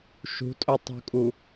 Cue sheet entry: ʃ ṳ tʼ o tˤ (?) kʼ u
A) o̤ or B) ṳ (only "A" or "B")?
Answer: B